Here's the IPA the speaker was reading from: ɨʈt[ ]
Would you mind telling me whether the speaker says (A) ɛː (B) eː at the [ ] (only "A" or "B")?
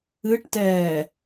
A